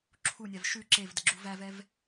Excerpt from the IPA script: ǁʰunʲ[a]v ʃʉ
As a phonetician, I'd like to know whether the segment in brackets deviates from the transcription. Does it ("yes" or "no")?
no